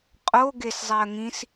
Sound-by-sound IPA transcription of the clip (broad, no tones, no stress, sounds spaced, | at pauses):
qʼ o ɡ e s zˤ i ə̯ ŋ ĩ s